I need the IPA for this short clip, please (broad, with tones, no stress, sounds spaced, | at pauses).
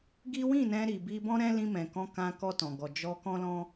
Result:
ɡ i˦ w ĩ˦˨ n ɛ̃˧ ɾ i˨ b i˧ b ɔ̃˦ ɾ ɛ̃˦ l ĩ˧ m ɛ̃˨ k ɔ̃˧ k ã˦ k ɔ˧ t ɔ̃˨ ɡ ɔ˨ d͡ʒ ɔ˧ k ɔ̃˦ l ɔ̃˦